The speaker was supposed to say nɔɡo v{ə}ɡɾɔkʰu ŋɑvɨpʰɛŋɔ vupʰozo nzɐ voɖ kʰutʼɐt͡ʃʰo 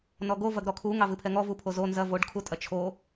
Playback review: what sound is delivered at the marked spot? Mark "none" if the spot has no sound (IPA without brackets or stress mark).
ɐ